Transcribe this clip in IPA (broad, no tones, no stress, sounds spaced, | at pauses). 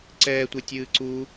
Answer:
ǀ ɛː tʷ e tʲ ɨː ǀ u